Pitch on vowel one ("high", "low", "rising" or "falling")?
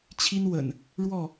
high